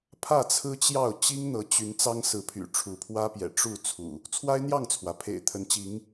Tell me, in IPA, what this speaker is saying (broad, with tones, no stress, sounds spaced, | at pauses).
pʰ ä˥˨ t͡sʰ ɹ̩˦ t͡ɕ j ɑ˥˨ ʊ̯ t͡ɕ i˦ ŋ n̪ ɤ˨˦ t͡ɕ y˨˦ n t͡s ɑ˦ ŋ s ɹ̩˨˦ pʰ y̰˨˩ ʈ͡ʂʰ u˨˦ pʰ w ä˦ p j ɛ̰˨˩ ʈ͡ʂ u˥˨ t͡sʰ ṵ˨˩ | t͡sʰ w a˦ ɪ̯ n̪ j ɑ˥˨ ŋ t͡sʰ w ä˩ pʰ ḛ˨˩ ɪ̯ t̪ʰ ə˨˦ n t͡ɕ i˨˦ ŋ